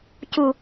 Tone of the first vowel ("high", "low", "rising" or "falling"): low